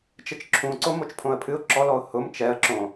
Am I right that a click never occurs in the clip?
no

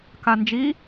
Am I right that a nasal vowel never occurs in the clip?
yes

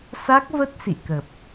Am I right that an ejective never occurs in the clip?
yes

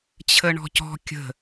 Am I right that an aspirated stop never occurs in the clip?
no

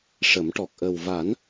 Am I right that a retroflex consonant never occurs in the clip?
no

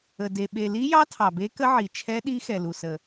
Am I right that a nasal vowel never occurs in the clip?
yes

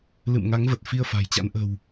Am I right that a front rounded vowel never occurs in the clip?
yes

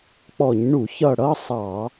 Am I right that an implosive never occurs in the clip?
yes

